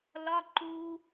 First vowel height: low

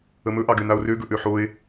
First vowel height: mid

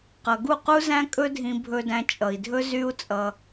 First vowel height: mid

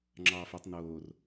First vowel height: low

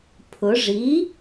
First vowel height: high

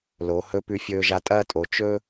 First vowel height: mid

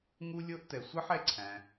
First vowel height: high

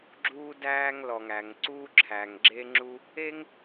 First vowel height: high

